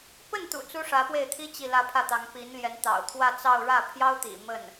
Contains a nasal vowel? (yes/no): no